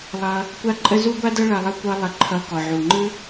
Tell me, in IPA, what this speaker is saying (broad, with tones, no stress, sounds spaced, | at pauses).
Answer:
lˠ ʌ˧ | kʷ a˥ ǃʼ ə˥ z u˥ ɡʷ a˥ d ʌ˥ ɭ ʌ˧ lˠ ə˥ kʷ ʌ˧ lˠ ə˧ ǃʰ ʌ˧ k ɔ˩ ʕ u˩ ŋ͡ǃ ɯ˥